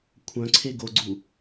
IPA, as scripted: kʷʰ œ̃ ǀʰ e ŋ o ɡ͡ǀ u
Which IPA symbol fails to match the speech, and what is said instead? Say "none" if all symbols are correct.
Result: ŋ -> ɡ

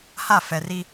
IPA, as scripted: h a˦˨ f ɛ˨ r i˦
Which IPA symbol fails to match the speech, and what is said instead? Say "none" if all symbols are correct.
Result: none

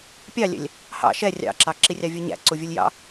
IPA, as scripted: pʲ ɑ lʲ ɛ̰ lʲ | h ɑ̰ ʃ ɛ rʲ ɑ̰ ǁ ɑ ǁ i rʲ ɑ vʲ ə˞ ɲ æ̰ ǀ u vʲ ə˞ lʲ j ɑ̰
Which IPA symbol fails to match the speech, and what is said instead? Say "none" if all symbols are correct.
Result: none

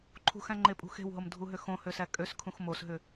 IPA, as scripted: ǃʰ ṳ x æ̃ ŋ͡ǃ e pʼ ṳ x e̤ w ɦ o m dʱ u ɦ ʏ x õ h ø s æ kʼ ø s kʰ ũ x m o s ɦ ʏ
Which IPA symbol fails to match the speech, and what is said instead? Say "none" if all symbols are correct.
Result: none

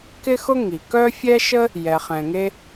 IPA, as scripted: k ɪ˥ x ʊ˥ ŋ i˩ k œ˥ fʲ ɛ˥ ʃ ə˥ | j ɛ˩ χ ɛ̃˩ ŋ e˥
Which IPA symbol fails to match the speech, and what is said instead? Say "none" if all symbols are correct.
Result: none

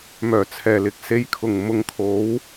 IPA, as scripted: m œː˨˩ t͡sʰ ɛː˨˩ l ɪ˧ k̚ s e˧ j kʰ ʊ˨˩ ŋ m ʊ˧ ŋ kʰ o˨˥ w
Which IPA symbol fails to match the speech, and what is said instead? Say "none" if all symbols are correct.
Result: none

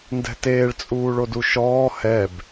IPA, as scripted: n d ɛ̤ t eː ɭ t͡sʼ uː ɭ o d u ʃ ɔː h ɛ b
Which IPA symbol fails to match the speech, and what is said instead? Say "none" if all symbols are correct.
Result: none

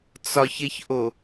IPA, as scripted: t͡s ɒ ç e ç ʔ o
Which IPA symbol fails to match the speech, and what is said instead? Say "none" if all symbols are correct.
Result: none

